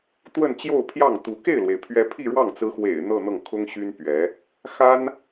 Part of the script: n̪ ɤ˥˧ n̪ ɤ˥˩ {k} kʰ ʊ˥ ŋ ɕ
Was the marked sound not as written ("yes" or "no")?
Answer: yes